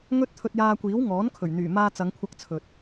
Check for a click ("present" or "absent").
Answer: absent